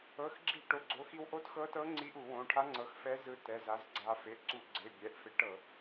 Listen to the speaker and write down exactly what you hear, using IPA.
ɤ˩˧˩ x ɡ͡ǁ i˧˩˧ ʈ o˩˧˩ ɡ͡ǀ o˩˧˩ x i˧ w ʔ o˧˥ t x ɤ˧˥ t ɤ˧˥ ŋ͡ǀ i˧˥ ʔ u˧˩˧ w õ˩˧˩ ʈʰ a˧˥ ŋ͡ǀ ɤ˩˥ x f ɛ˧˥ z ɯ˧ t ɛ˩˧˩ z a˩˥ z ɡ͡ǀ a˧ f e˩˧˩ ʔ ǀ u˧˩˧ ɡ͡ǀ e˩˧˩ bʲ ɛ˩˧˩ ʔ f e˧˥ ʈ ɤ˧˩˧

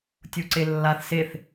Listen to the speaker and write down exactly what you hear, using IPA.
tʲ u ǀ e lː a θ s e θ

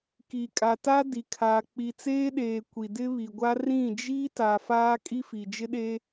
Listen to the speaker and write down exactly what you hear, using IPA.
k i˨ kʼ a˨ t a˦ d i˨ kʰ a˨ k͡p i˨ t͡s eː˦ ɗ eː˨ kʷ i˨ d ɪ˦ β i˨ ɡʷ a˦ r ĩ˦˨ d͡ʒ i˦ t a˨ f aː˦ kʼ i˦ f i˨ d͡ʒ ɪ˦ ɗ e˦

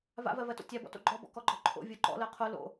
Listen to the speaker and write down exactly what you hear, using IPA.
v a̰ v ɜ v ɜ t o̰ tʲ a b ɔ̰ t o̰ ɡ͡ǃ ɔ b ɔ̰ k ɔ ɡ͡ǃ ɔ ǃʰ o̰ vʲ o ǃ ɔ̰ l ɜ qʰ o l o̰

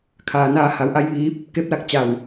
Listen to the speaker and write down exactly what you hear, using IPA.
kʰ aː˩ n aː˧ h a˩˧ w ʔ a˧˥ j ʋ iː˧˥ p̚ | k e˧˥ p̚ l a˧ k̚ t͡ɕ a˧˩ w

